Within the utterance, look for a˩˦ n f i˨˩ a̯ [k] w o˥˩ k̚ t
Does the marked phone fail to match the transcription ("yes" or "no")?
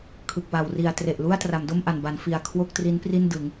yes